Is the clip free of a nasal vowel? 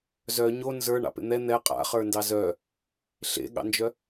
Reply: yes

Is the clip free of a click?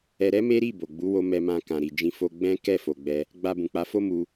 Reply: yes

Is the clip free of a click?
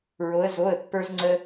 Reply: no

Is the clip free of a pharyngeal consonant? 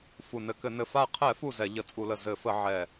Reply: no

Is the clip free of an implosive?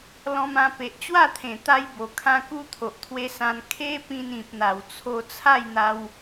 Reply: yes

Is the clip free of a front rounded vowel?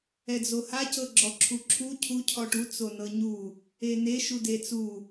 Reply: yes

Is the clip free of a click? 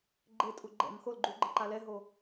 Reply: no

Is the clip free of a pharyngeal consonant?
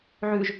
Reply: no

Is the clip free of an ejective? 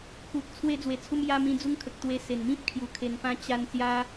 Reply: yes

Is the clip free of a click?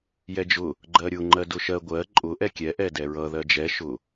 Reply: no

